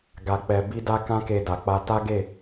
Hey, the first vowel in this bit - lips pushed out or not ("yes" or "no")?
no